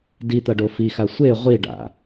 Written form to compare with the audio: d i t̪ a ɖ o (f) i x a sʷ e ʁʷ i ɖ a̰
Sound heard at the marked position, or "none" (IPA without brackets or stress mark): f